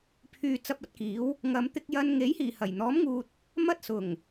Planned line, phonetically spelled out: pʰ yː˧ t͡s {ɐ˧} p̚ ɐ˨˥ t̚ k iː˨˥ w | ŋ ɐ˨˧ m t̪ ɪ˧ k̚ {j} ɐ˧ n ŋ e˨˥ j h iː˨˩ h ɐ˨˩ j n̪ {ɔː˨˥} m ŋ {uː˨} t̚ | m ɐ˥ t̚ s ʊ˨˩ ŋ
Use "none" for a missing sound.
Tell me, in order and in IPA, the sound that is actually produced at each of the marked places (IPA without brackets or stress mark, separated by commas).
ɐ˧, j, ɔː˨˥, uː˨